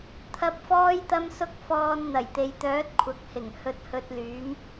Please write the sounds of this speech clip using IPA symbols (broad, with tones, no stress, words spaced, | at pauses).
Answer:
t̪ʰɐ˨˥p̚fɔː˧jt̪ɐ˧msʊ˧k̚ fɔː˧n n̪ɐ˨˩jt̪e˨jt̪œː˨˥t̚ kʷʰɐ˨k̚hɪ˨˩ŋ hɵ˨t̚hɵ˨t̚ lyː˨˥m